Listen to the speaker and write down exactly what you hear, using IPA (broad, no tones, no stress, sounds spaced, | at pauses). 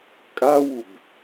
kʼ a w u b